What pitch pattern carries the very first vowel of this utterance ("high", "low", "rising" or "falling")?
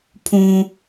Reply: high